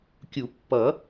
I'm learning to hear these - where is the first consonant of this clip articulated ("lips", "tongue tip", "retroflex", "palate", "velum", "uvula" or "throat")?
velum